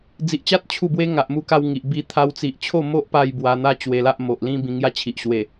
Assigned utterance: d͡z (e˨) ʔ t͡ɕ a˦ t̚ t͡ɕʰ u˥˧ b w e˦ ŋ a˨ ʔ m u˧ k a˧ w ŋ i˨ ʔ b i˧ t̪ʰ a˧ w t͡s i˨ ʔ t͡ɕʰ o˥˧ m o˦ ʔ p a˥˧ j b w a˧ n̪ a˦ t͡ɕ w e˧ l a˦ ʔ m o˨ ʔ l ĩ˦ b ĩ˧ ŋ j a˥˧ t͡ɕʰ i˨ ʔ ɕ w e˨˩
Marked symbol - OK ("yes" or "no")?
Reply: no